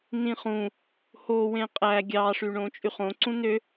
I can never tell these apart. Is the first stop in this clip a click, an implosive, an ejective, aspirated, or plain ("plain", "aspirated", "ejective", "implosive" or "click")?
ejective